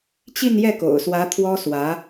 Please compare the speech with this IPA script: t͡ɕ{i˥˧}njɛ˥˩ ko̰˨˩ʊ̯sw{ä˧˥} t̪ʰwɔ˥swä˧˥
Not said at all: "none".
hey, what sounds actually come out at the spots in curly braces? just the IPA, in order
i˥˧, ä˧˥

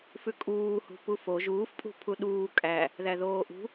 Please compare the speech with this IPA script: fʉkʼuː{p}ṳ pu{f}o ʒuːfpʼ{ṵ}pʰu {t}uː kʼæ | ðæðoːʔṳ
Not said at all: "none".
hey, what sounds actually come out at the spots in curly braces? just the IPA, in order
h, f, ṳ, ɗ

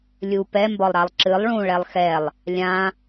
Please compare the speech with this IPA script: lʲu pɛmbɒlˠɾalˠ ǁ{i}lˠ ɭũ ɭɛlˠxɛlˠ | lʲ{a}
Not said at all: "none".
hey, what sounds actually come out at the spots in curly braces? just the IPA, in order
ɨ, ã

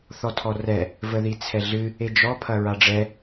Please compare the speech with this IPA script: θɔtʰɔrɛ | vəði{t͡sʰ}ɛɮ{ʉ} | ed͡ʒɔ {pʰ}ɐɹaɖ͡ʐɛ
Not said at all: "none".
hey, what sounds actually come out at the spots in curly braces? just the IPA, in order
t͡sʰ, ɨ, pʰ

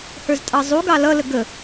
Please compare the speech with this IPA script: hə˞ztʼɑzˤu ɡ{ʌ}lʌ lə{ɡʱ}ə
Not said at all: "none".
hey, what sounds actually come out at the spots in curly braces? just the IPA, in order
ɑ, ɡ

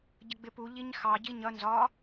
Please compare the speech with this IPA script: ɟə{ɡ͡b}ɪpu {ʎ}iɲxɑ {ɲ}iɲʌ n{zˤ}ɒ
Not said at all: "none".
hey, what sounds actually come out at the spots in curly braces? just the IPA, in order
ɡ͡b, ʎ, ɟ, z

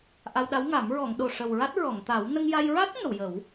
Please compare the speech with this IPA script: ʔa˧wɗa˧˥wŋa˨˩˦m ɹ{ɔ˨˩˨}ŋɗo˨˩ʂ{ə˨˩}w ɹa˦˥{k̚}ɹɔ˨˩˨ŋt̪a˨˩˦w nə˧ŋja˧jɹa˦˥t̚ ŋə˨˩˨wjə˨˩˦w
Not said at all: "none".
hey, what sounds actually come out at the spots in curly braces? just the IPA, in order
ɔ˨˩˨, ə˨˩, t̚

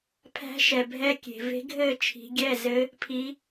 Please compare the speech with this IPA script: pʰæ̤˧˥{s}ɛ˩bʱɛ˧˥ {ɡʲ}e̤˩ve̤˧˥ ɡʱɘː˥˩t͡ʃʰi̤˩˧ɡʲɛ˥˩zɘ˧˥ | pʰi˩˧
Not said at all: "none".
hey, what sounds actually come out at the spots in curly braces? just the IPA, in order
ʃ, kʲ

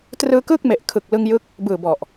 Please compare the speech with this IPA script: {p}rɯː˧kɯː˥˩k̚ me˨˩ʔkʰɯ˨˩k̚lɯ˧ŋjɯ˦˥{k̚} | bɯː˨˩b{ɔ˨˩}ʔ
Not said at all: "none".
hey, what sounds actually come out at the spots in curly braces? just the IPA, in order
t, k̚, ɔ˨˩

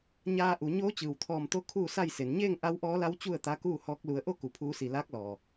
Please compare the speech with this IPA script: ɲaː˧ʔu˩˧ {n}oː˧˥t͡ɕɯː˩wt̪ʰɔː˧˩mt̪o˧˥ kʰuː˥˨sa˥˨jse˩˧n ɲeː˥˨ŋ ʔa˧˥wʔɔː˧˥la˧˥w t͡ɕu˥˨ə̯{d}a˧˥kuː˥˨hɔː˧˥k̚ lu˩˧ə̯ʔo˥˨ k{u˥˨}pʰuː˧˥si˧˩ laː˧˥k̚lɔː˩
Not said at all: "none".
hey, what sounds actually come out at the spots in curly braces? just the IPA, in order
ɲ, t̪, u˩˧

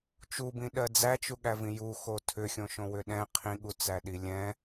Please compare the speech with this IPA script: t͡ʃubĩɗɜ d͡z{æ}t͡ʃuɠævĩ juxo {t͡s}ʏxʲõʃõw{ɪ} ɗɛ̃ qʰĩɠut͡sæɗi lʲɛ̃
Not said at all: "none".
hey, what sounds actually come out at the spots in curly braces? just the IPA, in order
æ, tʰ, ʏ

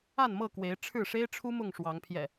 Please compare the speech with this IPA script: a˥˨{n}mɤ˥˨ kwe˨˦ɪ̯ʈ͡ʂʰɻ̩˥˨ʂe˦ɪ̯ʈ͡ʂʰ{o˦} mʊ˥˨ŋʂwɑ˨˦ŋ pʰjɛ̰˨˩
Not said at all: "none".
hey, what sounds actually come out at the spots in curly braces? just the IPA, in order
n, u˦

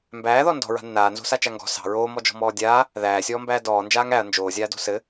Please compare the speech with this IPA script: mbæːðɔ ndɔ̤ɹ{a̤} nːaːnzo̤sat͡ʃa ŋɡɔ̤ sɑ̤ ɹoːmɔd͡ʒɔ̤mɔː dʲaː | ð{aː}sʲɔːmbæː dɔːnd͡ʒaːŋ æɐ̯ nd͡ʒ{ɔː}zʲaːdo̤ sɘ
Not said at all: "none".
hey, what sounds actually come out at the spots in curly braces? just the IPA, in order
a̤, æː, oː

